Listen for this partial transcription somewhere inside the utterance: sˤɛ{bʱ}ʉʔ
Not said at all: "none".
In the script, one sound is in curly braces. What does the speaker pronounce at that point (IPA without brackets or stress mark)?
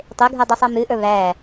m